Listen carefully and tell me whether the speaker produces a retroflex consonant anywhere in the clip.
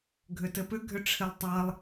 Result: yes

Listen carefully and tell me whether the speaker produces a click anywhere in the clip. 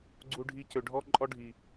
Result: yes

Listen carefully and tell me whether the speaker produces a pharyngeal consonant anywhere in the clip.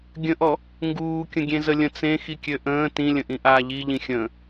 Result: no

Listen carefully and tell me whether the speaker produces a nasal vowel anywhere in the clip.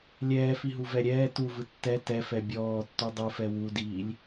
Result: no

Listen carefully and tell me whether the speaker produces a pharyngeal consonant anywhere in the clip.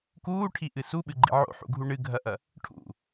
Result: yes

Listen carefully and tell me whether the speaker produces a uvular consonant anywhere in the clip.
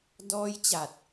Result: no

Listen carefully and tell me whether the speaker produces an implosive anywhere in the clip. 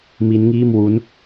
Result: no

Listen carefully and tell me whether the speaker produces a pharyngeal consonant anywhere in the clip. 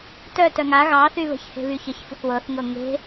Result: no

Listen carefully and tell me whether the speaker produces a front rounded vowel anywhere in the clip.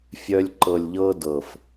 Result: yes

